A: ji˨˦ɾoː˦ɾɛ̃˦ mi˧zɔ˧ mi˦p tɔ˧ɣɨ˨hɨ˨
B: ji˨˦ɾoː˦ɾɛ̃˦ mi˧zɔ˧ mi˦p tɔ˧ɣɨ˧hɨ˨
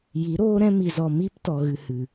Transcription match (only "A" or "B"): B